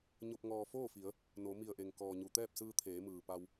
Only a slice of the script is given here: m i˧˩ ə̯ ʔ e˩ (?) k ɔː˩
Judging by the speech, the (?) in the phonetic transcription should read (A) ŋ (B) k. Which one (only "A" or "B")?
A